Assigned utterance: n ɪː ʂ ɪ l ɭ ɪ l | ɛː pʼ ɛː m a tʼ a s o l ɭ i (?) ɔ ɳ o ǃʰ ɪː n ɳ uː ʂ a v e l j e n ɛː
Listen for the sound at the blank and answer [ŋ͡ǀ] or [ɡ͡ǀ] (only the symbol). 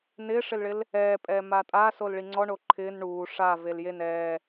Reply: ŋ͡ǀ